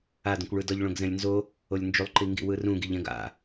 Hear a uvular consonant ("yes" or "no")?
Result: no